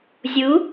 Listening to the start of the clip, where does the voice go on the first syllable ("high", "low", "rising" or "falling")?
rising